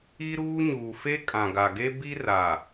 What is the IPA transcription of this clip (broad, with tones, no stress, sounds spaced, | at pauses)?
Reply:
i˦ ɾ uː˦ ɲ uː˨ f e˦ kʼ ã˨ ɡ a˨ ɡ e˦ b i˦ r a˨